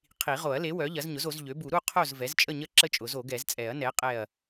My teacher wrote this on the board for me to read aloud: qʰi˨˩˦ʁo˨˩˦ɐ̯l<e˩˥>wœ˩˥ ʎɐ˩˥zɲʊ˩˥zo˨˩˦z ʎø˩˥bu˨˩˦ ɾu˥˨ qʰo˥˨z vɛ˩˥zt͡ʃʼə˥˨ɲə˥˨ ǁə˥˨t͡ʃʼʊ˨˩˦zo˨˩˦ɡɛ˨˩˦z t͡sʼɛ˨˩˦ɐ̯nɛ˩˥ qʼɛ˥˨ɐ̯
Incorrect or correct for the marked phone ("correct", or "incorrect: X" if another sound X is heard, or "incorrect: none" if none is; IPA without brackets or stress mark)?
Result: correct